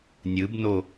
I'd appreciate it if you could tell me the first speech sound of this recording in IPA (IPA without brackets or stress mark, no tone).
nʲ